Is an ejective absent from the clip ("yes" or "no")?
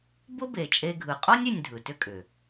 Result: no